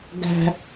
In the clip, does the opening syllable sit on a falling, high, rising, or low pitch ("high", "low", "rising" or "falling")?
high